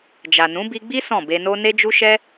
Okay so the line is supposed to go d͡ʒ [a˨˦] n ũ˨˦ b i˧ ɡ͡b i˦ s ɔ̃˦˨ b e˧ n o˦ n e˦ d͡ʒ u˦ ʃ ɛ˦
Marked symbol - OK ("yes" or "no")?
no